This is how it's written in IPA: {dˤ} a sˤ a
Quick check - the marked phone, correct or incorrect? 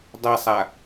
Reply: correct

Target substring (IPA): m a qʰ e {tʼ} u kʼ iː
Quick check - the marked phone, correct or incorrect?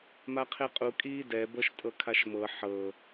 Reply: incorrect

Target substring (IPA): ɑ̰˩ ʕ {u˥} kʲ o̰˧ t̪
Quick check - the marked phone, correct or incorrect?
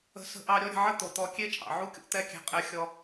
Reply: correct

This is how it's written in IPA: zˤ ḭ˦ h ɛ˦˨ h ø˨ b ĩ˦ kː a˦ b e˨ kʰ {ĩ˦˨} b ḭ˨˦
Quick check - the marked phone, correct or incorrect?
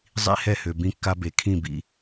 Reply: correct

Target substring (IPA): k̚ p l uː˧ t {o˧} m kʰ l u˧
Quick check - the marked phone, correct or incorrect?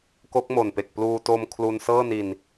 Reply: correct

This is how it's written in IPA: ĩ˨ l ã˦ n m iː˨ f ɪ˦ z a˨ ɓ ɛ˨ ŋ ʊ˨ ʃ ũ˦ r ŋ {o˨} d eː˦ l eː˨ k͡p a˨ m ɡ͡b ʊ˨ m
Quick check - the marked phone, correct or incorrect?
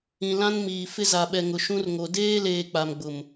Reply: correct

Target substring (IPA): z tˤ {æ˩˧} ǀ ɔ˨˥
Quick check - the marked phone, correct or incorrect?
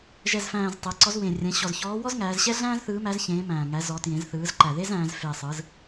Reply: incorrect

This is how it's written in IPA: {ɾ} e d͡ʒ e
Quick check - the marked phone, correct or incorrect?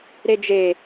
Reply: correct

